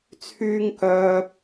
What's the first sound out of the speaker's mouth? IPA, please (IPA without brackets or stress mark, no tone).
t͡sʰ